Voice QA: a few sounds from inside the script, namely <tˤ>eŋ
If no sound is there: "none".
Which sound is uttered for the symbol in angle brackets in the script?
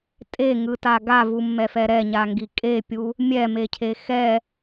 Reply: tʼ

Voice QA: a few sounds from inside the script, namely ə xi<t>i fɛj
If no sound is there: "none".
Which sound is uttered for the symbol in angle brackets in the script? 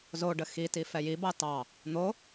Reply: t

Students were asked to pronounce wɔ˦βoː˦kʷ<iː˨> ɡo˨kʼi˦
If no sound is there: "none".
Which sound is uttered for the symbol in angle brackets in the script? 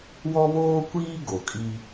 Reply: iː˦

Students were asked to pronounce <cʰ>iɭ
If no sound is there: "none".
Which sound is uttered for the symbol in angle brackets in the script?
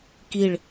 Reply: k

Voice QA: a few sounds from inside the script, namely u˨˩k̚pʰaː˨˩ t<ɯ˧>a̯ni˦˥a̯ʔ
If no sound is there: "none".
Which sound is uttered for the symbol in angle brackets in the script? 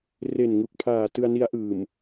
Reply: ɯ˧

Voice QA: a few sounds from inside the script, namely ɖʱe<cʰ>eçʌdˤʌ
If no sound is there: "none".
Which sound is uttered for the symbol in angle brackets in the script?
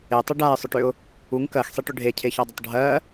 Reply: cʰ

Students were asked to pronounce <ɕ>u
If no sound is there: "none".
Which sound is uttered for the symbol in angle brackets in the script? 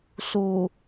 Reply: s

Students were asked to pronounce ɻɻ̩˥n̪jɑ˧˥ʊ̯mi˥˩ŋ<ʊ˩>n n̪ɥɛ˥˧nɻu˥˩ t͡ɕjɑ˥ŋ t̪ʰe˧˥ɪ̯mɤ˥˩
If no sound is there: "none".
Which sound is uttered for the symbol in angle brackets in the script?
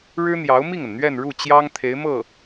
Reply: ə˩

